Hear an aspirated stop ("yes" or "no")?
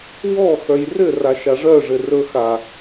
no